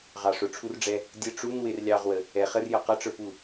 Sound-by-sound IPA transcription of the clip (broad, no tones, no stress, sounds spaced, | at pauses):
ʁ ɑ ʂ ʊ ʈ͡ʂʰ u r ɖ͡ʐ ɛ | dʲ ə ʈ͡ʂ u n w ɪ r lʲ ɑ ʁ w ə | ɛ χ ə r j ʌ q ʌ ʈ͡ʂ ə˞ p u